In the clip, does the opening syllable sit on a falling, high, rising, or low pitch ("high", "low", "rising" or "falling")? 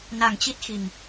low